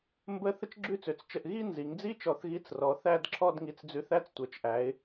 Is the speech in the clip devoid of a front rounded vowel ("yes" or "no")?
no